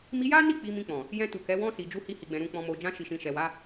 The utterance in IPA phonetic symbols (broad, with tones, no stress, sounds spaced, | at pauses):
m i˧ j a˦ n i˦˨ k͡p i˧ m ĩ˧ k͡p ɔ̃˨ | j ɛ̃˧ t u˨ k ɛ˨˦ w ɔ̃˧ s i˨ d͡ʒ u˧ h i˧ h i˨ ɡ͡b ɛ̃˨ ɾ ũ˨ k͡p ɔ̃˨ m o˨ d͡ʒ ã˧ ʃ i˨ ʃ ĩ˨ ʃ ɛ˨ w a˨˦